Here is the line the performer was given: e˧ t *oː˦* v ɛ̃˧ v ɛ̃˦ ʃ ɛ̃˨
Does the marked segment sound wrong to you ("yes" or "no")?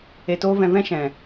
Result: no